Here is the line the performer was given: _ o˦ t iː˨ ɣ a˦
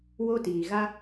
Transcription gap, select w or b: w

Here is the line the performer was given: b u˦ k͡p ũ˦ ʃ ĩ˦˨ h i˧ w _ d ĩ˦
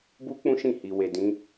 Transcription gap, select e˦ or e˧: e˧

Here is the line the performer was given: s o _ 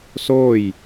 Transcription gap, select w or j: j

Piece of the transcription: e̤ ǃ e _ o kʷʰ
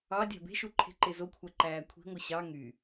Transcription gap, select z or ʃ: z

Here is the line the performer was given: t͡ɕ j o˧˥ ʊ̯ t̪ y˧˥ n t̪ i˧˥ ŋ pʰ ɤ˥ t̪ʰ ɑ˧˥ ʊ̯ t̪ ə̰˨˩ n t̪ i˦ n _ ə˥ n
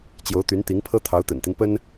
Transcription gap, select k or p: p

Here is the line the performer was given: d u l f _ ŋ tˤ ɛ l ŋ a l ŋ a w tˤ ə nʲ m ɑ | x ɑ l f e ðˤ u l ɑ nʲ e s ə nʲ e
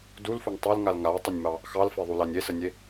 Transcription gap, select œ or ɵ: ɵ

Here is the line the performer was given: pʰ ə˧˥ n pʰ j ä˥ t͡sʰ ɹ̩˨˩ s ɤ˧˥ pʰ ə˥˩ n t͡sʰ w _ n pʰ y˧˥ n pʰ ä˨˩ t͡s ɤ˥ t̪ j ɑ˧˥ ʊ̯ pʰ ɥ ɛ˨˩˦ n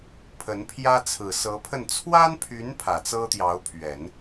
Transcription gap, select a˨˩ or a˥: a˥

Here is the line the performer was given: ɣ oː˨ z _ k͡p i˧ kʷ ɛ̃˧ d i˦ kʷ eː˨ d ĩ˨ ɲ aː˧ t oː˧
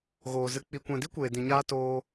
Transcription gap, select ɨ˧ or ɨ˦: ɨ˧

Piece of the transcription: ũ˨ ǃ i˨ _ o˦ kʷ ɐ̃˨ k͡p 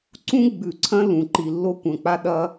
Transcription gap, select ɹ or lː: lː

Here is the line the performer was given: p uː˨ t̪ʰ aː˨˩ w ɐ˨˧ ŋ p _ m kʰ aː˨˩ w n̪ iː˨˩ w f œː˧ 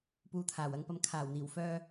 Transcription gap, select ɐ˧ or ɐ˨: ɐ˨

